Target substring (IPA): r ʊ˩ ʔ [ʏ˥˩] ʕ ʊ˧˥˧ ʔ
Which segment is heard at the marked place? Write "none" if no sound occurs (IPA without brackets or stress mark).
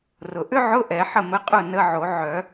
ʏ˥